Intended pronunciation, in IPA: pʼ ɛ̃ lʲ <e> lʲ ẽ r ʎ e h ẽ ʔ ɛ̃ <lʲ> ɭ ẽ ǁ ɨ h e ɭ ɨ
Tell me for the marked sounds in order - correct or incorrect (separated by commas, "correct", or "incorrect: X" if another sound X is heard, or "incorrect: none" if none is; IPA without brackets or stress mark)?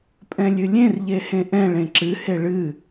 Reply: incorrect: ɨ, incorrect: none